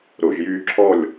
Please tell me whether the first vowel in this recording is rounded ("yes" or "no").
yes